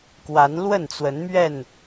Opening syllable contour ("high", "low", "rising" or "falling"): rising